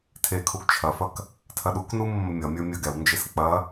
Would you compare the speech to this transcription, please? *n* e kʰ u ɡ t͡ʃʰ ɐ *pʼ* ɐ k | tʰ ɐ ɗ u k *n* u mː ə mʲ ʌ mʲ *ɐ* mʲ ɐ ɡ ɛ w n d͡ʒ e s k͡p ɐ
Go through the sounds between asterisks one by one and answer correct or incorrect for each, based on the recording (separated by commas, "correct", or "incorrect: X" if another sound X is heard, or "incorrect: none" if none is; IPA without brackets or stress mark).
incorrect: tʰ, incorrect: f, correct, incorrect: ə˞